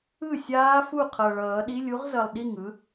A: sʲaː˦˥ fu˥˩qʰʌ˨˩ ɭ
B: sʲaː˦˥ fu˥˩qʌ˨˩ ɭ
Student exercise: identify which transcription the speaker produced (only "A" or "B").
A